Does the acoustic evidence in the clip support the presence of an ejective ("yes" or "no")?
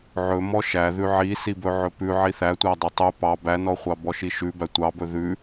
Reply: no